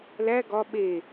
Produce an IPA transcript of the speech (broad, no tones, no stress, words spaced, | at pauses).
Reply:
læ ɡɒ ɓe